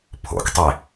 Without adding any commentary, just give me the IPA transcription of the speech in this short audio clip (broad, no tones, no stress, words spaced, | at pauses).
pʰo̰ktˤe